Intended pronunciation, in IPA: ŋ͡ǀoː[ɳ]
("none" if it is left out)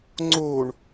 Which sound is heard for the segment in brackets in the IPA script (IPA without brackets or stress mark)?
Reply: ɳ